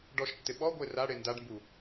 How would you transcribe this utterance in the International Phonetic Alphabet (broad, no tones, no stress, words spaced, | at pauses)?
ɖɔʃtːɪ ɓɔɡʷe raɽe ndaɖmbu